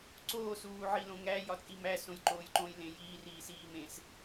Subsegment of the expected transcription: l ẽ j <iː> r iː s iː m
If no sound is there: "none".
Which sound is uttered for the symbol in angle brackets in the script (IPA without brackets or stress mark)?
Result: iː